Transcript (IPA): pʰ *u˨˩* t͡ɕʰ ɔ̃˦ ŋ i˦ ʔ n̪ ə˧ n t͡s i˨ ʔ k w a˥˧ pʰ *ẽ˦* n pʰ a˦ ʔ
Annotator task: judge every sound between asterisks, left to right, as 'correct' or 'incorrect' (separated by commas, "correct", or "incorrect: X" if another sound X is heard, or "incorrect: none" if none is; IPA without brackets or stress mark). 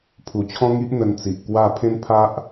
correct, correct